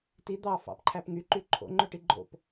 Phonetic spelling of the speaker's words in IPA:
t i d̪ ɑ f ɑ̰ p ǃʰ æ p ŋ y ǃ y ǃʰ o̰ ŋ͡ǃ ø ʈ i ɡ͡ǃ o̰ p

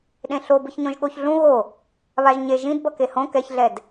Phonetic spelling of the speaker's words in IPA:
ɗ ẽ ɬ o b ɯ ç ɲ õ ʒ ɠ o ç ɮ ũ ɣ o | β a ʒ ɲ e ʒ ĩ d b ʌ k e h õ k ɛ ç ɮ ɛ d

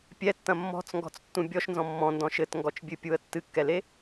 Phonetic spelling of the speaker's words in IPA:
pʲ ɛ tː ɐ̃ mː ɔ̤ t͡s ŋ ɡ ɔ̤ t͡s tː ũ bʲ ɔ ʃ n z ɔ̃ mː ɔ̃ n d ɔ̃ ʃ ɘ t ŋ ɡ ɔ t͡ʃ bʲ ɨ pʲ u ə̯ tː ɨ kː ɛ l e

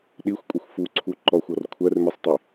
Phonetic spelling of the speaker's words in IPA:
ɗ i xʷ kʷʼ ə xʷ f u ǀʰ u ǃ ɔ xʷ ɔ r kʷʰ ɜ r m i sˤ tˤ i

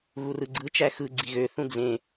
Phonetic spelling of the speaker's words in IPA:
ɣ u r ɯ ɡ͡ǀ ɯ t͡ʃ æ x ɯ ɡ͡ǀ i ɣ ø θ ũ d͡z ẽ

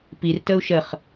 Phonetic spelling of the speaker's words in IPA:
p i r t ə u̯ ʃ ə χ

